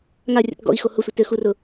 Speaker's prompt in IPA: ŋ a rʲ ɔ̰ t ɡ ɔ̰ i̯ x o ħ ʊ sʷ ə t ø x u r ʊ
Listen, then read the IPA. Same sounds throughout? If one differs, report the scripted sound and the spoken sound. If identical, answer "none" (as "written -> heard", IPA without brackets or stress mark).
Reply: ħ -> h